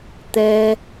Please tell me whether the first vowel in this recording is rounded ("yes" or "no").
no